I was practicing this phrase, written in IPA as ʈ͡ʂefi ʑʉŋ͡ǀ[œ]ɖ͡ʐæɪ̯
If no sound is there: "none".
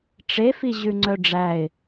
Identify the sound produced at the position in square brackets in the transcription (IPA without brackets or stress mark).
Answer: œ